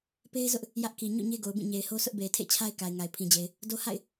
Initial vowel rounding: unrounded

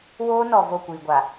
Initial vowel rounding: rounded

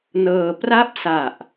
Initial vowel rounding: unrounded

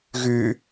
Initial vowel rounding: rounded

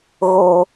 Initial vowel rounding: rounded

